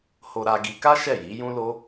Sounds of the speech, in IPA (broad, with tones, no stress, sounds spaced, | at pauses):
h o˧ ɾ a˧ ɡ i˧ k a˦ ʃ ɛ˦˨ j i˨˦ j ũ˦ l o˦